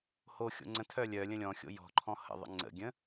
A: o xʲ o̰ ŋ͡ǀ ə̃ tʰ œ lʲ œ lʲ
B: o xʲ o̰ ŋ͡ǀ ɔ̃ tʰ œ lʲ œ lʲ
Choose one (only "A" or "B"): A